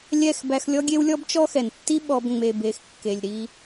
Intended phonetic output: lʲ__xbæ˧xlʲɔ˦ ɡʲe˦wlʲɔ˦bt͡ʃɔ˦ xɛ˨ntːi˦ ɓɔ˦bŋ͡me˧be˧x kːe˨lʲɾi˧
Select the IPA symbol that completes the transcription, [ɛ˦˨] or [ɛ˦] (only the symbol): ɛ˦˨